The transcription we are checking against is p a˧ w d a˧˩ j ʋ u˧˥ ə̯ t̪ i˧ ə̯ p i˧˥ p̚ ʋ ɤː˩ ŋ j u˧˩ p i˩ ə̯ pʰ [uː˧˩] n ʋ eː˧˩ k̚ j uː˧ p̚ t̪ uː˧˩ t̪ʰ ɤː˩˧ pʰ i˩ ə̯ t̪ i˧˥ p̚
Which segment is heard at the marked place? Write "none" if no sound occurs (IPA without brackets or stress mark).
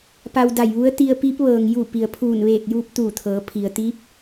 uː˧˩